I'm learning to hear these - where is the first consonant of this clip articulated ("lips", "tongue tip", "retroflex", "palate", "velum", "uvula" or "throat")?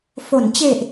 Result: lips